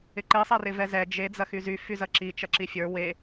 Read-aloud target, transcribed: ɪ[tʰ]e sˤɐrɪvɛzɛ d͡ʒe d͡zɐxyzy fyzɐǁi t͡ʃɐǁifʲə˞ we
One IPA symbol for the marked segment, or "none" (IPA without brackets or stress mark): ǃ